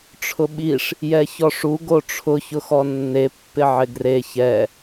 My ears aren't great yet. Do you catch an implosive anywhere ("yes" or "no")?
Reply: yes